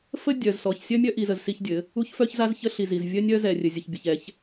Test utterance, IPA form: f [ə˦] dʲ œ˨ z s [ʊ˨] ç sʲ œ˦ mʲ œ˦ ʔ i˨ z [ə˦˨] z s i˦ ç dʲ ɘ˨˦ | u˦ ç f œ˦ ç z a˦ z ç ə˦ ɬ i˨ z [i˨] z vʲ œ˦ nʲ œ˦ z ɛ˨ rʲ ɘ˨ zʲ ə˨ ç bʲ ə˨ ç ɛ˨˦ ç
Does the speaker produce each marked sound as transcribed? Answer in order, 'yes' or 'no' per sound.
yes, no, no, yes

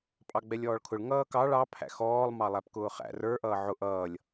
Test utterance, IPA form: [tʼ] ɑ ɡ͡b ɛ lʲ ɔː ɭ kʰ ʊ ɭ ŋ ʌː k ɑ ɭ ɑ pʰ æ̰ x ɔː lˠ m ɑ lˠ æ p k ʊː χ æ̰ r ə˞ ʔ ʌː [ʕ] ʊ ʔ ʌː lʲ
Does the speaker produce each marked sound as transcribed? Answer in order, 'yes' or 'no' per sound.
no, yes

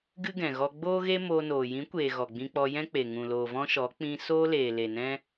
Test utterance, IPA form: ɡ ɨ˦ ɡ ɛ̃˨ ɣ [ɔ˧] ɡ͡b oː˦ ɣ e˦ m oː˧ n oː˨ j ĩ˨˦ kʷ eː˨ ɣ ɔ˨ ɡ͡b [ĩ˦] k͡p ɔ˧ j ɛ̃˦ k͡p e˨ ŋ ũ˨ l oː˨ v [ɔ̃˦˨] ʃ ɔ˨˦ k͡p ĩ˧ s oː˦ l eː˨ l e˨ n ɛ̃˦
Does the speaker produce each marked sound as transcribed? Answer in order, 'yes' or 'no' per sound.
yes, no, no

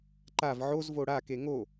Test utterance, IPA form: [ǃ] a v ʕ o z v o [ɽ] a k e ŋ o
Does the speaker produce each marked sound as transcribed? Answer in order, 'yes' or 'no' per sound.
yes, yes

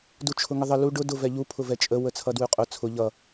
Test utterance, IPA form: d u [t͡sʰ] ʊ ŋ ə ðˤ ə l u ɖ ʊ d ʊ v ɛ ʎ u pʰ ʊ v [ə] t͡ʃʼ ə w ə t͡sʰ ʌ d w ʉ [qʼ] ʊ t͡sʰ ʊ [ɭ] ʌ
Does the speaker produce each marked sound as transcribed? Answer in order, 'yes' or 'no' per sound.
no, no, yes, no

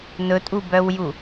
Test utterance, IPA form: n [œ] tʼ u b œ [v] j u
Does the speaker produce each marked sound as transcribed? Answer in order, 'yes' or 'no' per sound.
no, no

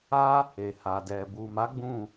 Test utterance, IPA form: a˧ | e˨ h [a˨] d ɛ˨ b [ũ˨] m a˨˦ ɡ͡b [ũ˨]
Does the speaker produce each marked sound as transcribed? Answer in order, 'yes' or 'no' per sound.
yes, no, no

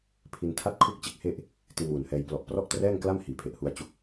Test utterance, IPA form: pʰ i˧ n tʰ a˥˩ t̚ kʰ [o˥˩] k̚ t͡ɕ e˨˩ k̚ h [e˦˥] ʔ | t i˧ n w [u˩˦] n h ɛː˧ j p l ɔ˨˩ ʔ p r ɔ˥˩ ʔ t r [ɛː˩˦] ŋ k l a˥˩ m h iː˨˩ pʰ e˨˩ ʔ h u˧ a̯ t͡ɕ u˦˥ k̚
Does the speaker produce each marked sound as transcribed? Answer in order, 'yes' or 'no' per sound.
no, no, yes, no

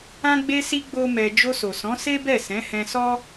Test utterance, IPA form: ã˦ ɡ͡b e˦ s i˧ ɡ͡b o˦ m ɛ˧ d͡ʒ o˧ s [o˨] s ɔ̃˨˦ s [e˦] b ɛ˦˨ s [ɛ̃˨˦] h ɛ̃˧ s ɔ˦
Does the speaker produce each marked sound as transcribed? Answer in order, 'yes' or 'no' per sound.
yes, yes, yes

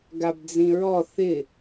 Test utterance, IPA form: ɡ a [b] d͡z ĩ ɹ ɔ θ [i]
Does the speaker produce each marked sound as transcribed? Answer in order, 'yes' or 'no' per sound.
yes, no

